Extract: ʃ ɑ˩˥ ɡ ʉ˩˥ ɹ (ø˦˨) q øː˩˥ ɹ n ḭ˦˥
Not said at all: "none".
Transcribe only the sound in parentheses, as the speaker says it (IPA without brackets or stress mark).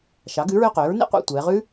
ø˦˨